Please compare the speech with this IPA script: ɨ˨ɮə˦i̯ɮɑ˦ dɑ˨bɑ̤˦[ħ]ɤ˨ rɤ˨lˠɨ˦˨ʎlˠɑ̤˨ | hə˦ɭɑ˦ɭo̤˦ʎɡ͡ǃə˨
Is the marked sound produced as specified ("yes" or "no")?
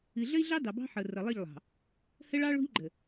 yes